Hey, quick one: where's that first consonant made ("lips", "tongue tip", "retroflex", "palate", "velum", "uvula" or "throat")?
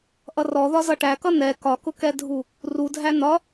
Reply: throat